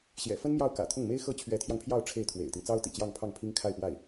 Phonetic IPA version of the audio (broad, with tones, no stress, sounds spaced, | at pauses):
ɕ j ɛ̰˨˩ f ə˥ n m j ɑ˥˩ ʊ̯ k ä̰˨˩ t̪ʰ ʊ˥˩ ŋ m e˥ ɪ̯ x ɤ˥˩ t͡ɕʰ ɥ ɛ˧˥ t̪ʰ j ɑ˧ ŋ pʰ j ɑ˥˧ ʊ̯ ʈ͡ʂʰ e˥˩ ɪ̯ t̪ʰ w ḛ˨˩ ɪ̯ t̪ i˦ ŋ t͡s ɑ˥ ʊ̯ t̪ ḭ˨˩ t͡ɕ j ɑ˥˧ ŋ pʰ ɑ˥˩ ŋ pʰ i˥ ŋ kʰ a˥˧ ɪ̯ p w a˥˩ ɪ̯